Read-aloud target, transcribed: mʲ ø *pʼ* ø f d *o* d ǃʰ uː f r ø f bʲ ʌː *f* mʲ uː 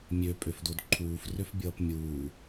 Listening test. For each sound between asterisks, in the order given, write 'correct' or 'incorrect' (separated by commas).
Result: correct, correct, incorrect